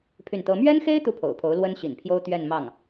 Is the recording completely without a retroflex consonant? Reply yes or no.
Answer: yes